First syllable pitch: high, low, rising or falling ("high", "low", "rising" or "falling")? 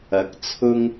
rising